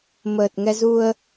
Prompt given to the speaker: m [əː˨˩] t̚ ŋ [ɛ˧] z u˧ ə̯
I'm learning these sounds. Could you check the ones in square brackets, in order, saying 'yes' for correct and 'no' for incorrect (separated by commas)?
yes, yes